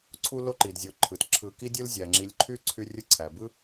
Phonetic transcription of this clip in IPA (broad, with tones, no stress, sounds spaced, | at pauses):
ǀʰ u˥ l o˥ ǃ i˩ d zʲ o˨ ǃʰ ɯ˩ t ǁʰ ɯ˨ k i˥ dʲ ɯ˥ l zʲ æ˩ ŋ͡ǁ i˨ lʲ ǃʰ y˥ ǀʰ y˦ rʲ ɯ˦ ǀʰ æ˩ b ɯ˥